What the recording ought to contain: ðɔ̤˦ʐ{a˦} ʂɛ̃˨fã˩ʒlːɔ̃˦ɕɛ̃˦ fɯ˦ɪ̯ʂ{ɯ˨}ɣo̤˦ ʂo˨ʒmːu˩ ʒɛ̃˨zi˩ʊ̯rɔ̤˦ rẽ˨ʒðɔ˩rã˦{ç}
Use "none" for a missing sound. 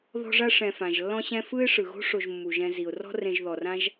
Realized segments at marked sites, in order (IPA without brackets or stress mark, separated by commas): a˦, ɯ˩, ʒ